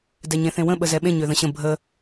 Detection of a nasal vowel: present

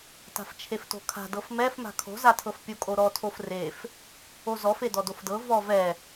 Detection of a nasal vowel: absent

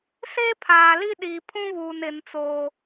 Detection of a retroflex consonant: absent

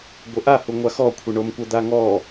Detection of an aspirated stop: present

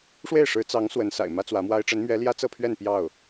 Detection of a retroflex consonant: present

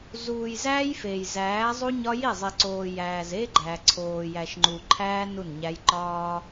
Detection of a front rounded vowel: absent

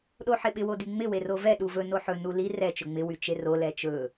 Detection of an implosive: present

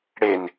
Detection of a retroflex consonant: present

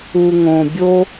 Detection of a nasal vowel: present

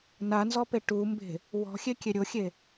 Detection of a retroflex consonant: present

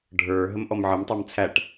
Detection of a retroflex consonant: present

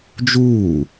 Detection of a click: absent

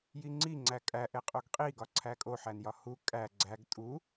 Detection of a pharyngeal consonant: present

